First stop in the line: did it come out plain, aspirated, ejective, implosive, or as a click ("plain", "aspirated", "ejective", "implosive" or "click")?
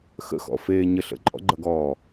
click